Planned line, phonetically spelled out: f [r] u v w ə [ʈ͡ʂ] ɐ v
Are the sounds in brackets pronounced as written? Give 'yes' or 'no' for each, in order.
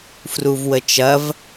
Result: yes, no

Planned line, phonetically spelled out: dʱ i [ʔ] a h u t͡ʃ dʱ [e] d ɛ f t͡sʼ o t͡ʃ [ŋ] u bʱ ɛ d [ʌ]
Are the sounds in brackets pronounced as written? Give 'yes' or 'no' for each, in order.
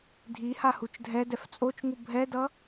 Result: no, no, yes, yes

